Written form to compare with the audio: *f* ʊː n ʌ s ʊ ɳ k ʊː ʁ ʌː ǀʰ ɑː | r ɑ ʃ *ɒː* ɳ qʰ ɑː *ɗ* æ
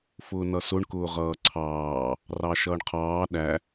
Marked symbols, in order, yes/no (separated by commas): yes, no, yes